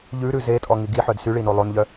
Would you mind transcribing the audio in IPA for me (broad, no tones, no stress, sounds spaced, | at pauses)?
ʎ ʉ ɾ ʉ z e tʼ ɔ ŋ i ɡ i ħ œ d s y ɭ i n o lˠ o n ʎ œ